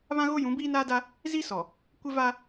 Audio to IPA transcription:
β ã˦ ɣ o˦ j ũ˨˦ b iː˦ n aː˦ d a˦ | z i˦ s ɔ˨ | kʷ ɪ˦ v a˦

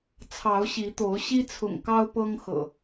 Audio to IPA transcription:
t͡sʰ ɑ˨˦ ʊ̯ ɕ i˨˦ t̪ o˨˦ ʊ̯ ɕ i˦ t͡sʰ ʊ̰˨˩ ŋ k ɑ˦ ʊ̯ p ɤ˦ ŋ x ɤ̰˨˩

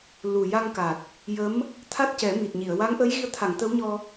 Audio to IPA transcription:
l u˨˩ j a˧ ŋ k a˨˩ t̚ | j ə˧˥ m | t̪ʰ a˦˥ t̚ c ɛ˨˩˦ m i˨˩ t̚ ɲ i˨˩˨ ə̯ w a˧˥ ŋ ʔ əː˧˥ j ɣ i˧˥ ə̯ t̪ʰ a˨˩˨ ŋ t̪ ə˧˥ w ɲ ɔ˧

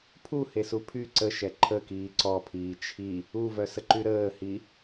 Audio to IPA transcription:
pʰ u h e s u pʰ y ǀ ə ʃ ɛ ǃʰ ə k iː ǀ ɔ pʰ iː t͡ʃʰ i | u v œ s ə ǃ y ɾ əː h i

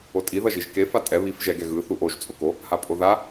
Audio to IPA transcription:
o tʼ i ð ʌ ʒ i ʒ k e f a tʼ ɛ β i f ʒ ɛ ɡ ɛ ɣ ɯ θ u ʔ o ʒ t͡sʼ o k o | h a pʼ o ð a

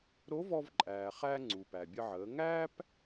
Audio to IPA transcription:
ɾ o˧˥ v ɔ˧ v ǃʼ æː˩ χ æ˧ ŋ͡ǀ u˩ p æ˩ bʲ ə˧ ʕ əː˩˧ ŋ æː˥ p

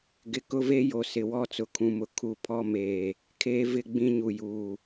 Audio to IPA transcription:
ɡ ɪ˨ k ʊ˦ v e˦ j o˨ s ɪ˨ w ɔ˦˨ t͡s ʊ˨ kʰ ũ˨ m ʊ˨ kʰ u˦˨ pʰ ɔ˦ m eː˨ | kʰ eː˦ v ɪ˦ ɡ͡b ĩ˦ ɲ u˨ j uː˨

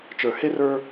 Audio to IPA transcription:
t͡ʃ ə˞˨ h e˦ r ə˞˦

